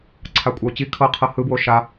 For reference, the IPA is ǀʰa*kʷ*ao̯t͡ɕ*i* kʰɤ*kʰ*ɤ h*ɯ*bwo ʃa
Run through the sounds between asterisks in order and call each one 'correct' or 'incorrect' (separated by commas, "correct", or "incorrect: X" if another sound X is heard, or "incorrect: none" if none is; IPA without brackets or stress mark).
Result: incorrect: kʷʼ, correct, incorrect: qʰ, correct